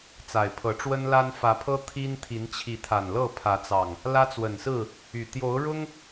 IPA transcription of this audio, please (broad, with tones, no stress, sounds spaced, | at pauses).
t͡s a˨˩ ɪ̯ pʰ ɤ˨˦ ʈ͡ʂ w ə˦ n l a˦ n f ä˨˦ pʰ ɤ˦ t̪ʰ i˦ n t̪ʰ i˨˦ n t͡ɕʰ i˨˦ t̪ʰ a˨˩ n l ɤ˥˨ pʰ ä˨˦ t͡s ɑ˨˩ ŋ | l ä˦ t͡s w ə˨˩ n s ɹ̩˥˨ | y˨˩ t̪ j o˨˦ ʊ̯ ɻ ʊ˦ ŋ